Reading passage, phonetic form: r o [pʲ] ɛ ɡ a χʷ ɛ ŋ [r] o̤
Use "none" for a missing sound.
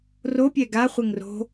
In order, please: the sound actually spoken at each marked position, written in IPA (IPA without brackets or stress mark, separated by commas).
pʲ, r